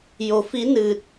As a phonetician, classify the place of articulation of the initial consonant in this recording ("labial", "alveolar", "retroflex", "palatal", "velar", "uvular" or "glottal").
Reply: palatal